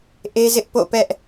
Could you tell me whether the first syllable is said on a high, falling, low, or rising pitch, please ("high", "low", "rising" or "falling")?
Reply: high